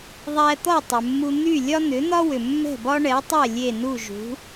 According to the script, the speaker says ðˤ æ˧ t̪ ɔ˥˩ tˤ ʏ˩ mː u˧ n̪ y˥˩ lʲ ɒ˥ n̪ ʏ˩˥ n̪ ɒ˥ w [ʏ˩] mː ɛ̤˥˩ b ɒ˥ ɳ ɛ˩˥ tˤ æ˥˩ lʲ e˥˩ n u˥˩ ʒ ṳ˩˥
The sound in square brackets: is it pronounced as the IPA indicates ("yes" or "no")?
yes